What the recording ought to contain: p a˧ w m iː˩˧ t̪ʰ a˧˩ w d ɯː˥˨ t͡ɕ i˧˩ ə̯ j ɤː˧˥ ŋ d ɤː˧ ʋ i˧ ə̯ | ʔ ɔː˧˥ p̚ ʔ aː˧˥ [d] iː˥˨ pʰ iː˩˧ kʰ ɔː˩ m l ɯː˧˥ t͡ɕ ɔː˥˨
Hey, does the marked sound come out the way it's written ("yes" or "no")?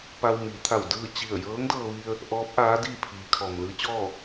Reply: yes